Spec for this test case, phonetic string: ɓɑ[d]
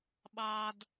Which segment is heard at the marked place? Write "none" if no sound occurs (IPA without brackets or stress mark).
d